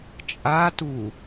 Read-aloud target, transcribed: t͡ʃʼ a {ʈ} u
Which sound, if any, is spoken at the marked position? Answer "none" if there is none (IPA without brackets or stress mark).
t